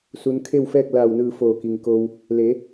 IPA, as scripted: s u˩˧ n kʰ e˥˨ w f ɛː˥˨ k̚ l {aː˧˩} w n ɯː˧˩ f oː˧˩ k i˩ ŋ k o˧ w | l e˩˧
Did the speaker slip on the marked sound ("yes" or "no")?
no